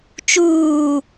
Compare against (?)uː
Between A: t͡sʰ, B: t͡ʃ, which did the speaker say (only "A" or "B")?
B